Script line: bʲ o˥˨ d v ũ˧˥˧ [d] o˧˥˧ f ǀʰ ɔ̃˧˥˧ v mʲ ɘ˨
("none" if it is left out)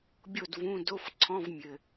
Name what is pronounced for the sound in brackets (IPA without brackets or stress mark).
d